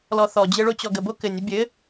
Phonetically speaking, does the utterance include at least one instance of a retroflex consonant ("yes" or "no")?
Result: yes